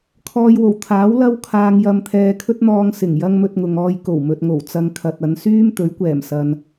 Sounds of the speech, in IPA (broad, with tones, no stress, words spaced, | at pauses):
kʰɔː˧jwo˨˩wt̪ʰaː˨˥w lɐ˥wkʰaː˧ŋjɐ˧mt̪ʰɛː˧ kʰɵ˥t̚n̪ɔː˧ŋsɪ˨˩ŋ jɐ˥ŋmɵ˧t̚ŋʊ˨ŋɔː˧j ko˨˩wmɵ˨t̚ŋo˨˩w t͡sɐ˧ŋkʰɐ˨t̚ɐ˨˧n syː˥m t̪ɵ˨˥ɥkʷɛː˨˩msɐ˨n